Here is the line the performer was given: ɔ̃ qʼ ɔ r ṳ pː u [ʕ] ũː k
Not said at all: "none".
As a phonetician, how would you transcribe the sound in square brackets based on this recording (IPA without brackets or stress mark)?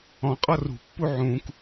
ʕ